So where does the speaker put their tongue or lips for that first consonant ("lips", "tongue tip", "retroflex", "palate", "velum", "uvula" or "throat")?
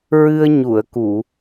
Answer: tongue tip